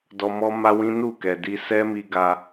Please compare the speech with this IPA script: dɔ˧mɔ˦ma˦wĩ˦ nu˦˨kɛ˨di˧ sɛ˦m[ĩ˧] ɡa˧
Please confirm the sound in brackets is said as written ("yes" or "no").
no